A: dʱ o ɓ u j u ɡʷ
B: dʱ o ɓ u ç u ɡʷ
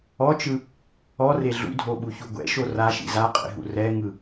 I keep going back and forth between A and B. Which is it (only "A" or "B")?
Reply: B